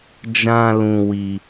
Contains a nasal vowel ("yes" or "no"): yes